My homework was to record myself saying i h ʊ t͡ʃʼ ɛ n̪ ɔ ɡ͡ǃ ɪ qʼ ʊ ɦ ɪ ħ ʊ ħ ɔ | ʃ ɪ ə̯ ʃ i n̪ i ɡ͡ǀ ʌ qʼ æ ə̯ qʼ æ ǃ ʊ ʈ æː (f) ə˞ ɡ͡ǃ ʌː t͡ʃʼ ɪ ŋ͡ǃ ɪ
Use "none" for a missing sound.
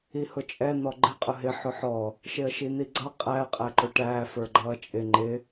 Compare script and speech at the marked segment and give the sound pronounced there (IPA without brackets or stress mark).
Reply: f